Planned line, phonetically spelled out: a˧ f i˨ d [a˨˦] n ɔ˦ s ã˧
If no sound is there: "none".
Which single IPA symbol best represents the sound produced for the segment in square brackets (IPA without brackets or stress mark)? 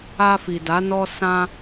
a˨˦